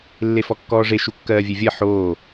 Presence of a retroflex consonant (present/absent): present